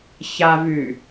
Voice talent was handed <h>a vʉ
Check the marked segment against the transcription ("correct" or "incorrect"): incorrect